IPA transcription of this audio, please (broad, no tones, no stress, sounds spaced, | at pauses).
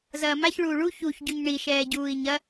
z ɐː m a ç ɭ uː ɭ u ç u ç ɟ u ɲ ɳ i ʃ ɛː ɟ uː i̯ ɲ ɐ